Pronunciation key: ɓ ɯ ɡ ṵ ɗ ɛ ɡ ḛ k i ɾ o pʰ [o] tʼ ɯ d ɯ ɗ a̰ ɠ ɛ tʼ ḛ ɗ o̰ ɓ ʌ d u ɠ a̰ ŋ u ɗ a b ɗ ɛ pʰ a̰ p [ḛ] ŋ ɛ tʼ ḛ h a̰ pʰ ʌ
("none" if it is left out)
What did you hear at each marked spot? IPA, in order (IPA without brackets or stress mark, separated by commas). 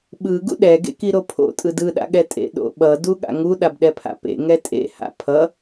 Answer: o̰, ḛ